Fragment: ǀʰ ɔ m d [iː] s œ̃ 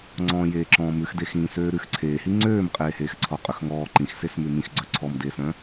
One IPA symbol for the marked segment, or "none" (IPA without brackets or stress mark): eː